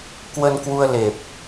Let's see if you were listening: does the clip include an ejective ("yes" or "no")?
no